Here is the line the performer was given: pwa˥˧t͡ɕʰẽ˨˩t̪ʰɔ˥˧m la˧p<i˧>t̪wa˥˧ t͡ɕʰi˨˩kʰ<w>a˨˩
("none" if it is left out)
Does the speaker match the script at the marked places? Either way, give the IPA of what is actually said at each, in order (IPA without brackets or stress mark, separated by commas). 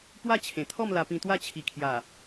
ĩ˧, j